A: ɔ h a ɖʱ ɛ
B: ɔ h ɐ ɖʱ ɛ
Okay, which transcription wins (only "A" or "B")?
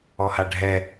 A